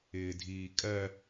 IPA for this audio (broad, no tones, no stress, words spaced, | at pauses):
ɪːdʱiːkʼɜ